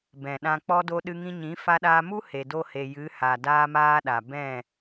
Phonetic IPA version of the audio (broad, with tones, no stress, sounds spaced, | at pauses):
b ɛ̃˨ ɗ ã˧ k͡p ɔ˦ d o˧ ɗ ɨ˧ ŋ ĩ˧ ɲ ĩ˨˦ f a˧ ɗ aː˧ m u˦ h e˨ d o˧ h e˨ j ɨ˨˦ h a˨ d aː˦ m aː˦ ɗ a˨ b ɛ̃˦˨